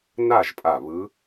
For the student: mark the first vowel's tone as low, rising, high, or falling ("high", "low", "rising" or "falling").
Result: falling